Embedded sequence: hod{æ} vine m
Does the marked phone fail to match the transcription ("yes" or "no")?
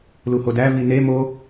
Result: no